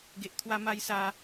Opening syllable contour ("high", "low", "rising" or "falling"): low